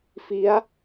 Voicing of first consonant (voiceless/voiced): voiceless